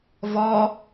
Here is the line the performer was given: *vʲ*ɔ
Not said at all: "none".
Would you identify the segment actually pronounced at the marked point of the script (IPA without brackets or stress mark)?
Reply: v